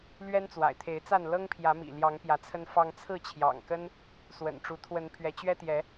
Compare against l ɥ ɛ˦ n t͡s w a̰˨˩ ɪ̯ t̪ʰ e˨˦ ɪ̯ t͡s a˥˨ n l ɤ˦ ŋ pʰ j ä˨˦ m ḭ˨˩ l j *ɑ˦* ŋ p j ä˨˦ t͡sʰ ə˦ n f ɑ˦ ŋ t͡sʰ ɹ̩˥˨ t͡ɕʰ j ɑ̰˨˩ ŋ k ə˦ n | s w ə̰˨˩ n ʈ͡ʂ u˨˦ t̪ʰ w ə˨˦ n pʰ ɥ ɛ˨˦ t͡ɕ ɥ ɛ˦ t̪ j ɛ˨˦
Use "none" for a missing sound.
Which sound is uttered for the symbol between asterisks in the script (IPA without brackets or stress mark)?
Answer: ɑ˨˦